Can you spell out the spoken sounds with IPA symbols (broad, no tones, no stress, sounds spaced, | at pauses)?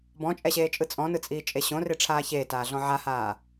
b ɔ̃ t͡ʃʼ ɛ ɕ eː t͡ʃʼ ɯ t͡sʼ ɔ̃ n ɯ t͡sʼ iː t͡ʃʼ e ɕ õ r e ʈ͡ʂʰ aː ç eː t aː ɮ ɔ̃ ʕ a h aː